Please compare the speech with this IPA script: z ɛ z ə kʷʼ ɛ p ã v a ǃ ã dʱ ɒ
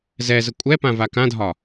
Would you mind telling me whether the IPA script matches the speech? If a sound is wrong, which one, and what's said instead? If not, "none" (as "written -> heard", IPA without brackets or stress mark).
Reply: ǃ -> k